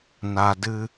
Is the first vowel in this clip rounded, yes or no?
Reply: no